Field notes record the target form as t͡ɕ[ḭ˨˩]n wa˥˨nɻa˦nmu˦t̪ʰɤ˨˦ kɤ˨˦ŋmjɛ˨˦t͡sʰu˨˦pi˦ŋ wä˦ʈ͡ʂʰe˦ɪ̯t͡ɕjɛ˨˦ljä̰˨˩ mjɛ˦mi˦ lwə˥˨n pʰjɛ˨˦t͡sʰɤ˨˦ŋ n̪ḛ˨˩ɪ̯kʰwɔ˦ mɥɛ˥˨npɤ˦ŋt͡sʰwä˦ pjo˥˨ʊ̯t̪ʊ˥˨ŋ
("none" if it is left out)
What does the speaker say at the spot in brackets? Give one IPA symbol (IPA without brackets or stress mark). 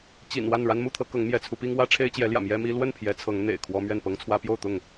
ḭ˨˩